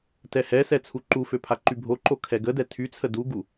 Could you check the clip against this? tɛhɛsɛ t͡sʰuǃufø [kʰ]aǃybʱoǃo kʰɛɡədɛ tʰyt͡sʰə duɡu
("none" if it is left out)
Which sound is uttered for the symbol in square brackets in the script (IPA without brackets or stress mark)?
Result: pʰ